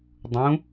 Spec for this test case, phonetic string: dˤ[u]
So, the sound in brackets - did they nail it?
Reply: no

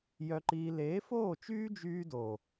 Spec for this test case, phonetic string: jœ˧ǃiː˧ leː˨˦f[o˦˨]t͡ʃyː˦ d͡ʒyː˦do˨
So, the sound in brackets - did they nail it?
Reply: no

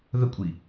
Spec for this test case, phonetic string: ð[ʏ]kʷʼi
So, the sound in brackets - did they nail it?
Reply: no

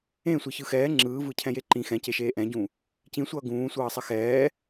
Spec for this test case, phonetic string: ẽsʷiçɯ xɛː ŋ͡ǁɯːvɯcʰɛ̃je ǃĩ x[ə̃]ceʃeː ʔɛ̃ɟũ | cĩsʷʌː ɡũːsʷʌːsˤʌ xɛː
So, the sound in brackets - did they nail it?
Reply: no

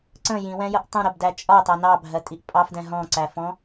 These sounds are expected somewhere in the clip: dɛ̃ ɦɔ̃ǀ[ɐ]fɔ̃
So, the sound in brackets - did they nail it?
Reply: no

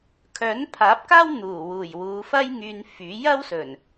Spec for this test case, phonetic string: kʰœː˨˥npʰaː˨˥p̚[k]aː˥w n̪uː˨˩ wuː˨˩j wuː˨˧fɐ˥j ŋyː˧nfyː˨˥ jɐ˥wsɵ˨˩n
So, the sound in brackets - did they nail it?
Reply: yes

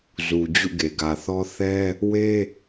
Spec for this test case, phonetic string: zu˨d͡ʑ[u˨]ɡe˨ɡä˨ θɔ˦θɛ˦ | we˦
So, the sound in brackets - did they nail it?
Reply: no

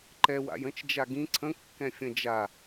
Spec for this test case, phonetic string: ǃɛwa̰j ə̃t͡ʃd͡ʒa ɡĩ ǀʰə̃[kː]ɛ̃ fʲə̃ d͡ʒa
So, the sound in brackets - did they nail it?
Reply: yes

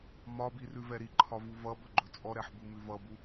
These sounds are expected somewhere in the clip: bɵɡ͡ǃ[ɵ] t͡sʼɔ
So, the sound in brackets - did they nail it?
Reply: yes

